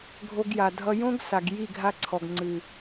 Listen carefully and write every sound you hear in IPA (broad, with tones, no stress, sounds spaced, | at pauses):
ɡʱ o˧ ɡ j a˨ dʱ ʌ˧ j õ˦ ɡ s a˨ ɡ j i˦˨ ɡʱ a˧ ǀʰ ɔ˨ ɡ ŋ͡ǀ ɨ˨